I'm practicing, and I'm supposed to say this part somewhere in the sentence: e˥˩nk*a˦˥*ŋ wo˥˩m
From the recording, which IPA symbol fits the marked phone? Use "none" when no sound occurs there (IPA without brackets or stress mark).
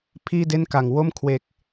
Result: a˨˩